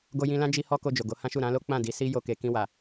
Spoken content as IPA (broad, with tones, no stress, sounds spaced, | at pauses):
ɡ o˧ j ĩ˧ l ã˦ d͡ʒ i˧ h ɔ˦ k o˧ d͡ʒ o˨ ɡ o˨˦ h ã˦ ʃ u˦˨ ɾ ã˧ l o˦ k͡p ã˦˨ d i˨˦ s i˦ j o˧ k e˨ k ĩ˧ w a˨